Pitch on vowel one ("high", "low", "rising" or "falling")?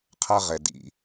high